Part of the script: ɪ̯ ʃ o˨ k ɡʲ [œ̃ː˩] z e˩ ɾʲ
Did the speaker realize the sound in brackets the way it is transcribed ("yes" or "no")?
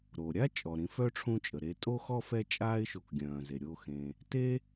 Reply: yes